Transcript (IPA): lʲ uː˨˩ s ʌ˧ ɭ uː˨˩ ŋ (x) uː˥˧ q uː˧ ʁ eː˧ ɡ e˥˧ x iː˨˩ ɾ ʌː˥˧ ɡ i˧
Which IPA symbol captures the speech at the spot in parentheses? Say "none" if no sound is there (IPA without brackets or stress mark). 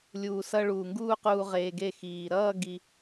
ɡ